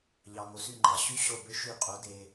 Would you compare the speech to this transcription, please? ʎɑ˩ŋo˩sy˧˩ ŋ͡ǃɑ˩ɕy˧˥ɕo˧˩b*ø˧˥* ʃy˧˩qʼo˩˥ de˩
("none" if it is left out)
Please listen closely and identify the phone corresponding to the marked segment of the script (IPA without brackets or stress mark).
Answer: ø˧˥